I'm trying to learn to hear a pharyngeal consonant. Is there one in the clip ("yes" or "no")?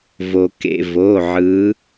yes